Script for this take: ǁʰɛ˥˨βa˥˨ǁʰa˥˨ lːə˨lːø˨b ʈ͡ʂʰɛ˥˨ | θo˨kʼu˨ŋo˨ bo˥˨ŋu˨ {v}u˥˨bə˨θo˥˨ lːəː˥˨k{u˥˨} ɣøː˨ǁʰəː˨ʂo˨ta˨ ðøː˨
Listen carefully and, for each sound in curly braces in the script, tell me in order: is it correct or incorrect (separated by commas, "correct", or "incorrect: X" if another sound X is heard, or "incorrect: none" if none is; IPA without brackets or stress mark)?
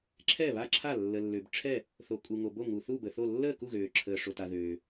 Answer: incorrect: θ, correct